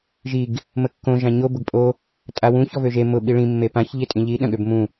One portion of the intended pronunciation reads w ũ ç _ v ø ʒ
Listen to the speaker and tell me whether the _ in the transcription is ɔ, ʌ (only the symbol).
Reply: ɔ